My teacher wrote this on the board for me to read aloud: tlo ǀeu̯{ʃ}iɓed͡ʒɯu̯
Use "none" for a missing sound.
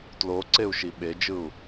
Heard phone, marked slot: ʃ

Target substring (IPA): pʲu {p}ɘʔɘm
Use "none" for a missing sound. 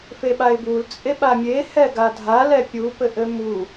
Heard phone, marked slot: p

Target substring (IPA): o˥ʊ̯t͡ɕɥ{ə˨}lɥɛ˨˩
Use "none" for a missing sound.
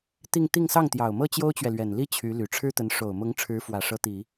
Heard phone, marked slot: ɛ˨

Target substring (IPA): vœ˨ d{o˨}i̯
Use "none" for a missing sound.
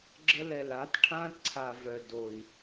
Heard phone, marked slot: o˨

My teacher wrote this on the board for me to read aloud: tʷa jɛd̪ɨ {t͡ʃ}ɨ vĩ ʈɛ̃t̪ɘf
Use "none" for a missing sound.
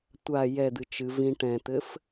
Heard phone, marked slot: t͡ʃ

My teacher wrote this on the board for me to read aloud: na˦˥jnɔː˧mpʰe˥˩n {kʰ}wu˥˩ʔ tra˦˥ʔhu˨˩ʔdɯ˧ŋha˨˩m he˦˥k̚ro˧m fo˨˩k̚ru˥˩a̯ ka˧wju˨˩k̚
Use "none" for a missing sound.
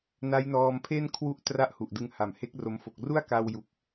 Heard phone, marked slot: kʰ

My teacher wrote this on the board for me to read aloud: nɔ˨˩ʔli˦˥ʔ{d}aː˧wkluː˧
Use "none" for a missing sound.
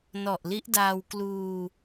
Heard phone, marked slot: d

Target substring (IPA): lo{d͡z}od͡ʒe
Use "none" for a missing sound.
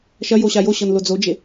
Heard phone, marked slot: d͡z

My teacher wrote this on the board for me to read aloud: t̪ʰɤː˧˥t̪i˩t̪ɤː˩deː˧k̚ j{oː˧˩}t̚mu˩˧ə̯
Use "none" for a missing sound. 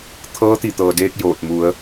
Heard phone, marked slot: oː˧˩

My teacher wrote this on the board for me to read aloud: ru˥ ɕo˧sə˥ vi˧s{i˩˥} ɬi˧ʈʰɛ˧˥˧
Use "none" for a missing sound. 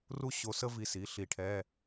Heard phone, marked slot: i˩˥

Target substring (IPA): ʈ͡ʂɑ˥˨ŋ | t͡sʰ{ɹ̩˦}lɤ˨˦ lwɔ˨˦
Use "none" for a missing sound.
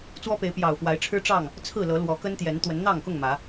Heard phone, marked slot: ɹ̩˥˨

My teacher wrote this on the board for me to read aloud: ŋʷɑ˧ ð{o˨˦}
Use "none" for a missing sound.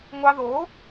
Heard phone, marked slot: o˨˦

